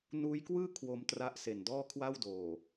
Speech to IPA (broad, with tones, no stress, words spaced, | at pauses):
nuː˦˥jkwɯː˥˩ kʰwo˧mtra˦˥ʔse˨˩n dɔː˥˩kʰwa˥˩wdoː˨˩